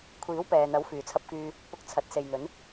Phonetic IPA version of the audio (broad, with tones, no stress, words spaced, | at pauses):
kʷʰiː˨˥wpɛː˨n̪ɐ˨˥w fyː˨t͡sʰɐ˧p̚kyː˧ | pʊ˧k̚t͡sʰɐ˨˥t̚ se˨jn̪ɵ˨˧n